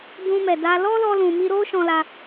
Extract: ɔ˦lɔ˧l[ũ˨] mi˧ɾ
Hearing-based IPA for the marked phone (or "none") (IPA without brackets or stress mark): ũ˨